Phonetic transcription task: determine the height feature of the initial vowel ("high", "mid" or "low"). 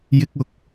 high